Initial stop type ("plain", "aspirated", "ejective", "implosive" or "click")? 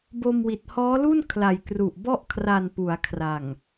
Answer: plain